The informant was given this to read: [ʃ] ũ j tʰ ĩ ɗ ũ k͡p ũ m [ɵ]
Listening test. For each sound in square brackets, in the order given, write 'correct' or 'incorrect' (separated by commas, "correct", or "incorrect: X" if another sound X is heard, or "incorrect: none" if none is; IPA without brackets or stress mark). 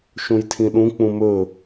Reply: correct, correct